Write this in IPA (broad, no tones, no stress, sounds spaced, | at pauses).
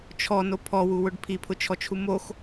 t͡ʃʰ ɔ n o pʰ ɔ w u w ʊ ɖ pʰ i pʰ ʊ t͡ʃʰ ɔ t͡ʃʰ u m o x